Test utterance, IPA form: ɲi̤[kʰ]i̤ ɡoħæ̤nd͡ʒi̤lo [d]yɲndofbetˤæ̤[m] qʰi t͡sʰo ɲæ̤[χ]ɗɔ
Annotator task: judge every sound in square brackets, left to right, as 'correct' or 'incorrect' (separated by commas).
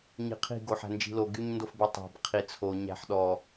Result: incorrect, incorrect, incorrect, incorrect